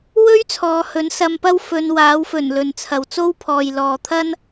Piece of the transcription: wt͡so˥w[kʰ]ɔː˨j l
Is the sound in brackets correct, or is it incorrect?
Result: incorrect: pʰ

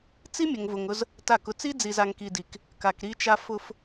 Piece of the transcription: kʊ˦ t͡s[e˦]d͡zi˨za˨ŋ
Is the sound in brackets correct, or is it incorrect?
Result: incorrect: i˦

